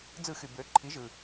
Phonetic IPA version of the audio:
d͡z ɯ˧˩˧ x y˩ b ø˩˥ ǃʰ i˩˥ ʒ ɯ˩

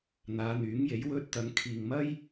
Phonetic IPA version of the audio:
n̪ aː˨˧ n̪ yː˨˥ ŋ j e˨˥ j w ɵ˧ t̚ t̪ ɐ˨˧ ŋ kʰ iː˨ ŋ m ɐ˥ j

